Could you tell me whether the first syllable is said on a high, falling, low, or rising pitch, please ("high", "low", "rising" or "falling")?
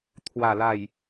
low